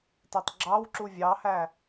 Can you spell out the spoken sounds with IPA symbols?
t æ tˤ ɡ͡ǁ ɑ w ǁ u vʲ ɑ h æ

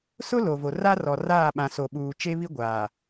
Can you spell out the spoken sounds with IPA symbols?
s ʊ˦ l o˨ v o˨ r a˦ r ɔ˨ r aː˦˨ ɓ ã˨ s o˨ ɓ uː˨ t͡ʃ e˦ β i˦ ɡʷ aː˨

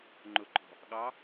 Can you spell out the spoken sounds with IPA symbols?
ŋ͡ǃ ʊ ǃʼ ɔ̤ | ɠ ɑ

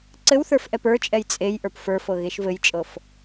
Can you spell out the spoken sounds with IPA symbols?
ǀ ɘ w θ ə˞ f ʔ ɛ p ə˞ t͡ʃʼ ɛ j t͡sʼ e j ʔ ə˞ p f ə˞ f ɤ ɣ e ʃ v ɘ j t͡ʃʼ ɤ f

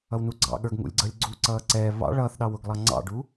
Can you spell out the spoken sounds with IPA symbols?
ʌ w n u ɡ͡ǀ ɑ̰ ɠ ə˞ ɡ ŋ ṵ lʲ ɡ͡ǀ ʌ lʲ ɡ͡ǀ u ǀ ʌː ǀ ɛː β ɑ̰ ɭ ʌː θ ɗ ɑ w ʊ ɡ lˠ ɑ ŋ͡ǀ ɑ̰ ɖ u

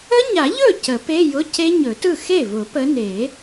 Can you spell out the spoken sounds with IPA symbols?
ə˦˥ ɲ a˨˩˦ ʎ ɵ˥˩ c ə˨˩˦ p e˧˥˧ j ʊ˧˥˧ c e˦˥ ɲ ɵ˨˩˦ t ɯ˥˩ x e˥˩ v ʊ˨˩˦ p ə˨˦ n e˨˩˦

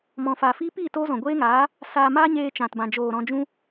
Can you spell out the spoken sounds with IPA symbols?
m ɔ̃˨ f aː˨ f iː˦ p iː˦˨ t oː˦ z ɔ̃˨ ɡʷ eː˦ ŋ aː˨˦ | s aː˧ m aː˦ ɲ eː˧ t͡ʃ ã˨ t b ã˨ d͡ʒ oː˨ ɾ ɔ̃˧ d͡ʒ ũ˦

